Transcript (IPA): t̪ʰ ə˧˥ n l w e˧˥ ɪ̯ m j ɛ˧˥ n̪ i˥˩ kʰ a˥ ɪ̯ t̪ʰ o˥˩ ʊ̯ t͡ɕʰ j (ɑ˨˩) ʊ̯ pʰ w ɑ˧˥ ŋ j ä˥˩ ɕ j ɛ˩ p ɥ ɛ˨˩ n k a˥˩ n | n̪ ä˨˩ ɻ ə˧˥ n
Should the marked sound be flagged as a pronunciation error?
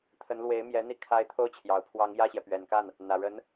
no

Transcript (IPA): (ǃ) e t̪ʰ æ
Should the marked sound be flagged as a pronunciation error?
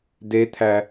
yes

